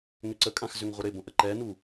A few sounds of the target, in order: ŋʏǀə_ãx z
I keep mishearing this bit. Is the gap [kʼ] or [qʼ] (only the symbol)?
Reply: kʼ